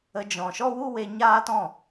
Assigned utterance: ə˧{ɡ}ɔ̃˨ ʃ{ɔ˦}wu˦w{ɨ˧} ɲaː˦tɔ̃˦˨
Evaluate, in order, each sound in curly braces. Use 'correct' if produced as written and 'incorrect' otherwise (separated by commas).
incorrect, correct, incorrect